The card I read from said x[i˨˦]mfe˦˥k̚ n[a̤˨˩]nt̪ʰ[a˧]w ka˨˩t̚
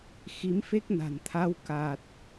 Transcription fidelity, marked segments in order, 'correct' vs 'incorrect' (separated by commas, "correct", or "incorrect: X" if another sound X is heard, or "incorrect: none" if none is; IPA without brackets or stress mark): correct, correct, correct